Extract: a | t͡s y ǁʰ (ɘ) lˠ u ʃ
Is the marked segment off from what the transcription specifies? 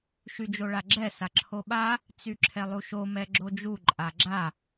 yes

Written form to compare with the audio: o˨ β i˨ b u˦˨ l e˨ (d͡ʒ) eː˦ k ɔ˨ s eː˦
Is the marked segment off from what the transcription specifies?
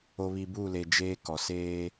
no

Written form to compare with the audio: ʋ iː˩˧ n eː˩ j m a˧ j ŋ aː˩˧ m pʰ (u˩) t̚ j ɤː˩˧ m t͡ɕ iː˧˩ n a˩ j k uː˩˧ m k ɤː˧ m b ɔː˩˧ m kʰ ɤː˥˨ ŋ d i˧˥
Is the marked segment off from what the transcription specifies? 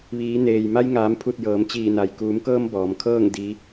yes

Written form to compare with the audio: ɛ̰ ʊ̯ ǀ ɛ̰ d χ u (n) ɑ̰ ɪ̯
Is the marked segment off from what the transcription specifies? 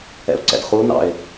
no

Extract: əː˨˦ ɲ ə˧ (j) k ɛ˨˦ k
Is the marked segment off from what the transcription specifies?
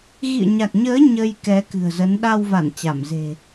no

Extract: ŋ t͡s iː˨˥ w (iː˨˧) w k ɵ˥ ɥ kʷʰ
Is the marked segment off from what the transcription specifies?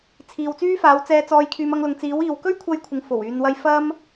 no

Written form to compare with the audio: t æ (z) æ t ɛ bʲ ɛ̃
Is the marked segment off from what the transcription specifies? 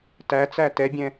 yes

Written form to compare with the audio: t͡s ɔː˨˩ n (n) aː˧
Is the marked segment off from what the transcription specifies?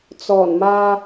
yes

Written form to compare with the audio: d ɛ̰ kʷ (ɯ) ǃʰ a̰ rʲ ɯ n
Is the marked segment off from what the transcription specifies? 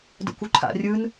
yes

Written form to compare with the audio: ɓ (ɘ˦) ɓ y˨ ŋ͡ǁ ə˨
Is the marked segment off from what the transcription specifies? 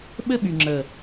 no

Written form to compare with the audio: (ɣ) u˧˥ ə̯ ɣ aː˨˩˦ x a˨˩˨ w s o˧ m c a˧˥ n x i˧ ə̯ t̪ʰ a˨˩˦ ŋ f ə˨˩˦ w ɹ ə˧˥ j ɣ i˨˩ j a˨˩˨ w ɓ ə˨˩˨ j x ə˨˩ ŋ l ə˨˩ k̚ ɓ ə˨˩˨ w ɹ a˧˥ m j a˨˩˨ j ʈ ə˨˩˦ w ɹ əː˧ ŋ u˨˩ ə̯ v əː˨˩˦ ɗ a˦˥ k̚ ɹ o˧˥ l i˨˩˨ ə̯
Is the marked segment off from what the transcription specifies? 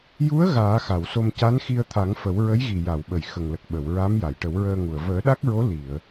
yes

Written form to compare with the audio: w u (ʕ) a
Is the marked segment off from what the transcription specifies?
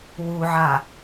no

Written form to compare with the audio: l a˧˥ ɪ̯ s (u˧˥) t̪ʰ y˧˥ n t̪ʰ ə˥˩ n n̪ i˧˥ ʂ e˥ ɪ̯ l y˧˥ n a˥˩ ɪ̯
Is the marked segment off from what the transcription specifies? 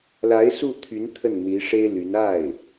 yes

